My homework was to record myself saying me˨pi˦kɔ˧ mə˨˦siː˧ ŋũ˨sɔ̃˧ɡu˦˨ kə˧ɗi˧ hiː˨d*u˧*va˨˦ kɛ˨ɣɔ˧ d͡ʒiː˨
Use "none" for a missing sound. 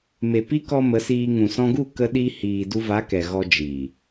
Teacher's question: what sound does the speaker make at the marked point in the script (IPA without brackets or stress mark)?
u˧